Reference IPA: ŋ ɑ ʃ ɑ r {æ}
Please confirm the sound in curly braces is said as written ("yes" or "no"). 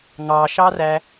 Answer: yes